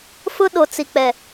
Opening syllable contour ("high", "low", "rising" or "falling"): high